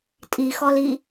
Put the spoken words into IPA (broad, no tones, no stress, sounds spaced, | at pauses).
tʼ i x ɔ l i